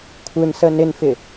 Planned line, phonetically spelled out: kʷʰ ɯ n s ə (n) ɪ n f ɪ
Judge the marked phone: correct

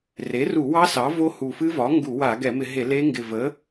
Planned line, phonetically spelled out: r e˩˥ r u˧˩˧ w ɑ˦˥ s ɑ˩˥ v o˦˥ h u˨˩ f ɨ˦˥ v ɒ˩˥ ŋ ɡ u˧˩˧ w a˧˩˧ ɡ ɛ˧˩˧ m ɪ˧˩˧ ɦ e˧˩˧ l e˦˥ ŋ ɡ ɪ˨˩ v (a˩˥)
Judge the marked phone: incorrect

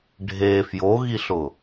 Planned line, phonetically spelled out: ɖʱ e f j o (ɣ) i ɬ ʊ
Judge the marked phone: correct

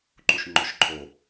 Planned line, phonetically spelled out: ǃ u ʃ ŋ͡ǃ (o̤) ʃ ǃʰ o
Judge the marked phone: incorrect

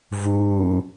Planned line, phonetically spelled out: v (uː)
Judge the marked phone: correct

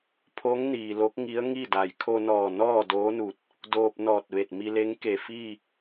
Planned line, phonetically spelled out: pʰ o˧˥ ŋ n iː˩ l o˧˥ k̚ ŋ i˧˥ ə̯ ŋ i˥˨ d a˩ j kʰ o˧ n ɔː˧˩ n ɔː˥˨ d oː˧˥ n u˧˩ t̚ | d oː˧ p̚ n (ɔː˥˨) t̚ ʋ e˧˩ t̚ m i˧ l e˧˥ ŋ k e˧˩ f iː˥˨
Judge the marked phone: incorrect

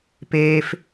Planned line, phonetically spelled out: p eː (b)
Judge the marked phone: incorrect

